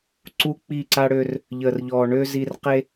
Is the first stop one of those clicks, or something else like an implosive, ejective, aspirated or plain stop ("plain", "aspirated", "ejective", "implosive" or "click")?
click